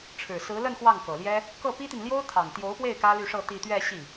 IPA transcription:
ʈ͡ʂʰ ɻ̩˨˩ s ɹ̩˧˥ l ə˥˧ n x w ɑ˥˩ ŋ k ɤ˨˩ l j ɛ˥ | k ɤ˥˩ p i˥ t̪ i˨ n l j o˥ ʊ̯ t̪ʰ ɑ˨˩ ŋ t̪ j o˧˥ ʊ̯ p w e˥˩ ɪ̯ k ä˥ l y˥˧ ʂ ɤ˥˧ t̪ i˥˧ t̪ ɥ ɛ˥˧ ɕ i˥˩

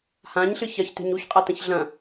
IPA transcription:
h ã ɲ ɬ ɨ ç ɐ ç t e̤ ɲ u ç qʼ a t ɐ̃ ç ɮ ɐ̃

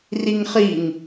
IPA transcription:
r i ŋ χ i ŋ

